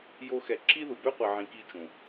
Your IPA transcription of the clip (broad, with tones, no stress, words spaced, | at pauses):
jo˦xɛ˧ ǁi˦ðu˨bø˦qʷi˨ ʕĩ˧ki˦t͡ʃũ˨